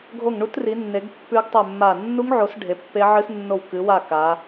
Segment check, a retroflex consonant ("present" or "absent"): present